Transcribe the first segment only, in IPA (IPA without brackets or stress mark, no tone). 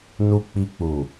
n